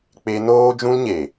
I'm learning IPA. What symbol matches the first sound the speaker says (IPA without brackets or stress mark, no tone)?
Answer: k͡p